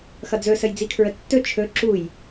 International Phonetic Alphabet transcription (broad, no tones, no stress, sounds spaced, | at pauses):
x ʌ d͡z ɵ s ə j d͡z i kʰ ɹ ə tː ɵ t͡ʃʰ ɵ ǁ u j